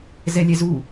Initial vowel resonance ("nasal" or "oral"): oral